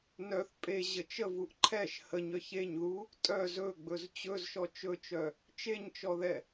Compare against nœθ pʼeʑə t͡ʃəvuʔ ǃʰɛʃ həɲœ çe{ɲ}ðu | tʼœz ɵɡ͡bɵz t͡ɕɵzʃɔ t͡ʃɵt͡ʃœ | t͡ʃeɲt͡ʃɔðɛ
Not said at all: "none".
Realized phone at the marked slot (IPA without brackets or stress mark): ɲ